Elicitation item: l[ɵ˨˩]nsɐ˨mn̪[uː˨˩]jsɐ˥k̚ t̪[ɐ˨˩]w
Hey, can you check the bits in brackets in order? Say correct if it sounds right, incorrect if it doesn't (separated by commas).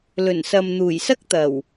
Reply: correct, correct, correct